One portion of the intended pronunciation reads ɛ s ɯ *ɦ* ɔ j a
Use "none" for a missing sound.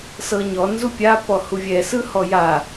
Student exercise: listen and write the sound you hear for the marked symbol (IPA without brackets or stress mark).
h